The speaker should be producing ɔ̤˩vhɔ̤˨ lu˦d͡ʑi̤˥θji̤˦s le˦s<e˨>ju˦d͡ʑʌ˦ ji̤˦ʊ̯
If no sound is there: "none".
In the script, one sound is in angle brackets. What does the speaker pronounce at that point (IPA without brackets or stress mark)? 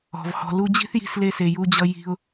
e˨